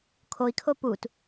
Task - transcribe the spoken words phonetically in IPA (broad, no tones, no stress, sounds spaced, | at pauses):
kʰ o i̯ kʰ o p u t